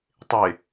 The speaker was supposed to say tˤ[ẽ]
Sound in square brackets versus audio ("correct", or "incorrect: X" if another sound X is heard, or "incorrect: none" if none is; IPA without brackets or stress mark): incorrect: e